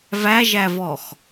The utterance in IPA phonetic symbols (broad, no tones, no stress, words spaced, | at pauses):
væʒævɔx